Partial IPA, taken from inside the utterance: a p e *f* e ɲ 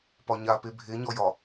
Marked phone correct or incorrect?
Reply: incorrect